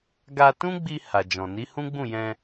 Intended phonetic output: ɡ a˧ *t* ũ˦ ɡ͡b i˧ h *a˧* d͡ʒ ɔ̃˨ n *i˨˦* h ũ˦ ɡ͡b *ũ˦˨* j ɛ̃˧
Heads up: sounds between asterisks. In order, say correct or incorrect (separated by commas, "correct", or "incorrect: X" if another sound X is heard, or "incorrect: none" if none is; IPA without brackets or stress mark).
correct, incorrect: a˨, correct, correct